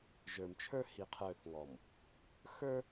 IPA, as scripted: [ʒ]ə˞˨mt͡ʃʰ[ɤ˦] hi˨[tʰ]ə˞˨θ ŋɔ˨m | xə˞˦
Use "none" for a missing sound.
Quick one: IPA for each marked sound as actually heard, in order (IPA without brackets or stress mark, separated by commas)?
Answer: ʒ, ə˞˦, qʰ